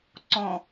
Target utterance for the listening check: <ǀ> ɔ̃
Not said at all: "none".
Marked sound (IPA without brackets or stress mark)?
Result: ǀ